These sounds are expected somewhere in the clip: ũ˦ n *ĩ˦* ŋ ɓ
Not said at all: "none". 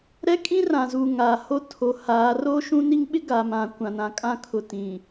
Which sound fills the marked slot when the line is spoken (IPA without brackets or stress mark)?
i˦